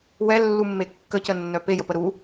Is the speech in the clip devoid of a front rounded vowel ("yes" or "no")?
no